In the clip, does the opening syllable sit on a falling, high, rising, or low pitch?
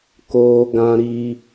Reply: high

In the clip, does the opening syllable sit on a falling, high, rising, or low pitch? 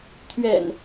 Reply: low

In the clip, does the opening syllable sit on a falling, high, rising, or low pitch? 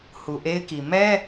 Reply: low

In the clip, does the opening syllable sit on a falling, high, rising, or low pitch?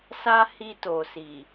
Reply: high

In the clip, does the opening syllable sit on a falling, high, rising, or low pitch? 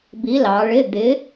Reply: rising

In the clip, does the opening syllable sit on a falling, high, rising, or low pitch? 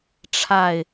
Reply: low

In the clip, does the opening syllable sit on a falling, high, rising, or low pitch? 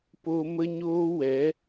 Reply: high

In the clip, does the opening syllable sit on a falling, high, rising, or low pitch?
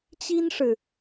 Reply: high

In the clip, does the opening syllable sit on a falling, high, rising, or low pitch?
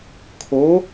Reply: rising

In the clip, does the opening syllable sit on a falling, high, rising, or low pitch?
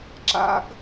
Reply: high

